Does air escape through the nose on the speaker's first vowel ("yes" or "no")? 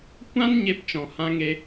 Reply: yes